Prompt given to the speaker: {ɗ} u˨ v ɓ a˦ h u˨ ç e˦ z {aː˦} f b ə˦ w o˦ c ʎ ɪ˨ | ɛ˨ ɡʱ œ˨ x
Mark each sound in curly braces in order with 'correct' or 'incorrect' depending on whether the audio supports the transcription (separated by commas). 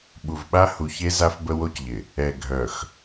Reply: incorrect, incorrect